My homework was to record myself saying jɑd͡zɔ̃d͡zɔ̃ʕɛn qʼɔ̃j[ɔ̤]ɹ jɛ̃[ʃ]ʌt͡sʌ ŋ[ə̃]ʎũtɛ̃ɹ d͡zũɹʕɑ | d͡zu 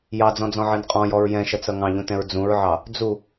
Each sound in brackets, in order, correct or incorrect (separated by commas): incorrect, correct, incorrect